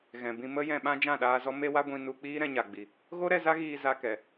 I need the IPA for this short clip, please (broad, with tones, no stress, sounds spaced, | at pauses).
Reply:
ɣ ɛ̃˨ b ĩ˧ m ə˦ j ɛ̃˧ ɓ ã˦ d͡ʒ ã˦˨ ɗ aː˧ z ɔ˦ m e˦ w a˦ ɡʷ ĩ˧ n u˧ k͡p iː˦ ɾ ɛ̃˧ ɲ a˨ ɡ͡b i˨ | ɣ o˦ ɾ ɛ˧ z a˦ ɣ iː˧ z a˧ k ɛ˨